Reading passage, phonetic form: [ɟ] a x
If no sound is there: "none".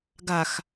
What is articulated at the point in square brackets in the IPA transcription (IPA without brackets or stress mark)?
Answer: ɡ